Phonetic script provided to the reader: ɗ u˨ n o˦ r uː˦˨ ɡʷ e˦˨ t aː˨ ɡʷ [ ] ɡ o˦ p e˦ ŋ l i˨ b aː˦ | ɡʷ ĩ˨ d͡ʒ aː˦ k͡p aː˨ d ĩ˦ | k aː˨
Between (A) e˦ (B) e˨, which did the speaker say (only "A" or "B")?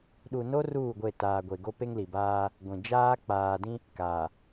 B